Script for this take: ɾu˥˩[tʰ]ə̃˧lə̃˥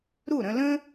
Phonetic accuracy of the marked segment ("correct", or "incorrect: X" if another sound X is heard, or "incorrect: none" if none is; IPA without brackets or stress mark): incorrect: ɾ